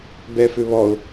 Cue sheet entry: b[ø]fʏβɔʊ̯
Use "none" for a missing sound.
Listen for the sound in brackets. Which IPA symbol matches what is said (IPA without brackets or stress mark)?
ɛ